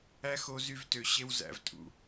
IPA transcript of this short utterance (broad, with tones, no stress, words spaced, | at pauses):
æ˦xo˧zy˧vtø˨ ɕe˧wzæ̰˨vtʼṵ˨